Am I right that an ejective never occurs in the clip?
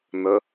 yes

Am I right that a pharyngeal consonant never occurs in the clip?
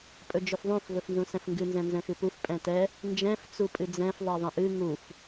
yes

